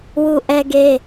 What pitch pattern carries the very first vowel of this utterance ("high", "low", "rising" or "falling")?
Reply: high